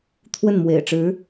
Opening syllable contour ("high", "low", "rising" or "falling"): falling